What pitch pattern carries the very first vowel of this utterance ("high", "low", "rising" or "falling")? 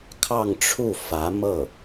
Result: falling